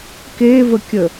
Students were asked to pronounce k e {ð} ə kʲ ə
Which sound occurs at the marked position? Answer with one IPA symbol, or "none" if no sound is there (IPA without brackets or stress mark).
v